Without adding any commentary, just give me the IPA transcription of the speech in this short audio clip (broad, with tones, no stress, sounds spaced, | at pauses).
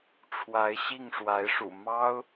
ʈ͡ʂʰ w a˧˥ ɪ̯ ɕ i˥˩ ŋ ʂ w a˧˥ ɪ̯ ʂ ṵ˨˩ m ɑ˥ ʊ̯